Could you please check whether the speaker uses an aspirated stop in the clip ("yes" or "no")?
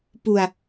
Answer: no